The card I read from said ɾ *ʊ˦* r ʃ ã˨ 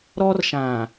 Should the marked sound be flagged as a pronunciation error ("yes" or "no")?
yes